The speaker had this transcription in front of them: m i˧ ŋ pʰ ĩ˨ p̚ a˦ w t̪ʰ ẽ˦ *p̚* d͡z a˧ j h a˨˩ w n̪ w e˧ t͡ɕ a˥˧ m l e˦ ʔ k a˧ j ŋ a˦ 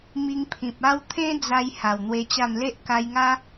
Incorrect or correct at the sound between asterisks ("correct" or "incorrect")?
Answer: incorrect